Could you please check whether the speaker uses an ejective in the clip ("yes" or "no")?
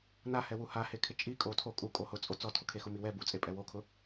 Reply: yes